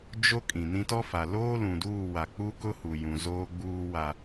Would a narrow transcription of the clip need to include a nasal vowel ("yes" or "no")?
yes